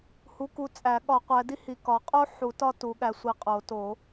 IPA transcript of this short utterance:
h u˨˦ k u˨˦ t͡sʼ æ˨˩˦ ɠ ɒ˨˩˦ qʷ æ˨˦ d i˥ h i˨˦ k ɒ˨˦ qʼ o˥ ħ u˨˩˦ t ɒ˥ t u˨˦ ɠ æ˨˦ sʷ i˨˦ qʼ o˨˩˦ t o˨˩˦

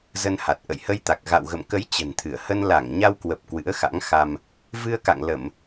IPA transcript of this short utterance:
z ə˧ n h a˨˩ t̚ ʔ ə̰˧˨ j h ə˧ j t̪ a˨˩ k̚ ɣ a̰˧˨ w ɣ ə̰˧˨ m k ə˨˦ j t͡ɕ ə̤˨˩ n t̪ʰ ɨ˧˩ ə̯ h ə˧ n l a˧˩ ŋ ɲ a˧ w k w ə˨˩ p̚ k w ɨ̰˧˥ ə̯ x a̰˧˥ ŋ x a˧ m | v ɨ˧ ə̯ k a̰˧˨ ŋ l ə˧˩˨ m

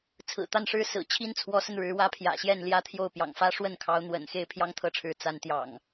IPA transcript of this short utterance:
t͡sʰ ɹ̩˨˩ t̪ a˥˨ n ʂ ɻ̩˦ s ɹ̩˨˩ t͡ɕʰ i˦ n t͡sʰ w ɔ˨˦ s ə˧ n ɻ ɻ̩˨˦ w ä˦ pʰ j ä̰˨˩ ɕ j ɛ˥˨ n l j ä˦ t̪ʰ j o˥˨ ʊ̯ p j ɑ̰˨˩ ŋ f ä˦ ʂ w ə˥˨ n kʰ ɑ˨˦ ʊ̯ n̪ w ə̰˨˩ n x e˥˨ ɪ̯ pʰ j ɑ˦ ŋ t̪ʰ ɤ˥˨ ʈ͡ʂʰ ɻ̩˨˦ t͡s a˨˦ n t̪ j ɑ̰˨˩ ŋ

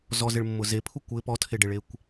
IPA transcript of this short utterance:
z ɔ z ɪ ɭ mː ʊ z e pʰ u kʷ ɪ p ɔ tʰ e ɖ e ɭ e kʷ

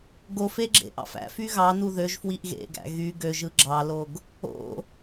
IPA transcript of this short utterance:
ɡ o f e ɡ͡ǁ ḛ ʔ ɑ̰ f æ̰ f y ɣ ɑ n u ð ø ʒ f w i ʔ ɣ ḛ ɡ æ̰ ɣ y ɡ ø ʒ ɯ ɡ͡ǁ ɑ l o ɡ | o̰

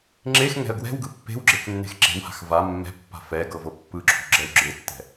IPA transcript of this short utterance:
ŋ͡ǁ e x ŋ ɛ̤ ə̯ ɡ w ɛ̤ w ɡ ɯ pː e̤ w ɡ͡ǁ e k nː e̤ x ǁ e̤ w h a̤ x v a mː ɛ̤ pː a̤ f ɛ ɡ ɤ v ɤ pː ɯ ǁʰ ṳ ɡ͡ǁ ɛ w ɡ͡ǁ e tː ɛ̤

